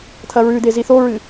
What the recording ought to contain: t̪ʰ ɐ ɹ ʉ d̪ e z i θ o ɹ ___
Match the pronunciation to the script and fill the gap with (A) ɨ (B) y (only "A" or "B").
A